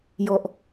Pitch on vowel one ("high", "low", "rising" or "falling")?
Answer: low